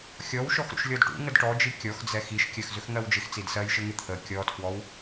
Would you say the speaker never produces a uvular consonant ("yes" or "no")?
yes